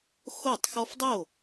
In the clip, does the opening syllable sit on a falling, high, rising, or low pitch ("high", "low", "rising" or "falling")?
falling